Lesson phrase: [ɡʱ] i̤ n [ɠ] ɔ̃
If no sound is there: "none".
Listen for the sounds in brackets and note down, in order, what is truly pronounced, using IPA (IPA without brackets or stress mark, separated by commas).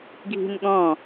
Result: ɡʱ, ɠ